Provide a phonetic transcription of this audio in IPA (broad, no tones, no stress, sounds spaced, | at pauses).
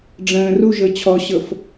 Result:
ɖ͡ʐ ə̃ː r u ʒ ɤ t͡ɕʰ ɔ ɕ ɤ f